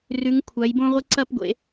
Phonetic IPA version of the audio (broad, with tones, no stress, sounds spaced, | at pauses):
r ʉ˨˥ ŋ kʷʰ a˨˥ j b õ˥ ʁʷ ɨ˥ ǀ ɐ˥ p ɡʷ ḛ˨˥